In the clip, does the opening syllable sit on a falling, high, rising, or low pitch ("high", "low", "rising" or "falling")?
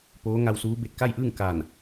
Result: rising